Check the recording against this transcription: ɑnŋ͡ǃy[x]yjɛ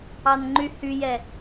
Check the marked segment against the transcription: incorrect: h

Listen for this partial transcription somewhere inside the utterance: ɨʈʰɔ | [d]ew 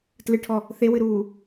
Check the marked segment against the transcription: incorrect: θ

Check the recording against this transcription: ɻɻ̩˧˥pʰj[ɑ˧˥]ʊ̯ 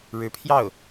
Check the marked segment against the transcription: incorrect: ɑ˥˩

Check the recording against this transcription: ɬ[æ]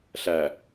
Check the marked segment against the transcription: correct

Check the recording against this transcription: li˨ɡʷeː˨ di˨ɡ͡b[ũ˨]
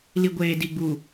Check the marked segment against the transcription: incorrect: u˨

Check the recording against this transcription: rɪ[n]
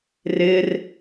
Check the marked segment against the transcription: incorrect: r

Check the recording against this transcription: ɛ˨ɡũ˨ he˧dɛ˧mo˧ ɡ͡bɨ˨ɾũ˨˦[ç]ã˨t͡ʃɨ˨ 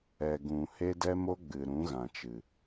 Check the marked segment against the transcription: incorrect: ɣ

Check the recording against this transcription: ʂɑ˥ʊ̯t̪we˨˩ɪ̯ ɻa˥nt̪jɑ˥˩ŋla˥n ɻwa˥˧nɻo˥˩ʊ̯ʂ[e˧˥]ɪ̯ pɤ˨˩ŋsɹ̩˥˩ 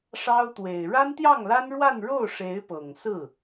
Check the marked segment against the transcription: correct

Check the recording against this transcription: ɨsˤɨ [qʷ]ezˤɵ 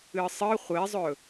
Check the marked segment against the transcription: incorrect: χʷ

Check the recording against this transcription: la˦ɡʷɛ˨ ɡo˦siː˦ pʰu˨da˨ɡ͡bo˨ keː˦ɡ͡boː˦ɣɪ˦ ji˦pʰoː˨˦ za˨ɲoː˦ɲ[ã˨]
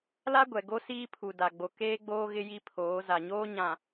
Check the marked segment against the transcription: correct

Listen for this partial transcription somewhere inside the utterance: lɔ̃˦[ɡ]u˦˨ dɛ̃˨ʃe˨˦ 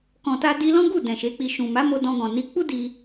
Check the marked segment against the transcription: correct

